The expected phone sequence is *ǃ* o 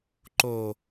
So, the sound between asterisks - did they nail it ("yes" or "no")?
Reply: yes